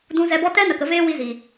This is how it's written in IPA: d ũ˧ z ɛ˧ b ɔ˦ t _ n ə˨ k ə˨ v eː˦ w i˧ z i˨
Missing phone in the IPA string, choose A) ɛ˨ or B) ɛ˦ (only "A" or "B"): B